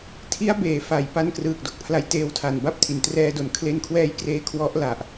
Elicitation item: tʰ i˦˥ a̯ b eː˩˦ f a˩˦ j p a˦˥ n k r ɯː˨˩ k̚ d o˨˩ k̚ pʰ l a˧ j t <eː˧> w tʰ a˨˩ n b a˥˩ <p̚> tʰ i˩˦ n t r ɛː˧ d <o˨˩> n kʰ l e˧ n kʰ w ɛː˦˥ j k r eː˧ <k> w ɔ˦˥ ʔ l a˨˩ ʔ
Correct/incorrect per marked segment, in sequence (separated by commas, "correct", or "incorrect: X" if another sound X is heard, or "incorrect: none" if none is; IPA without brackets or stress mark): correct, correct, correct, incorrect: kʰ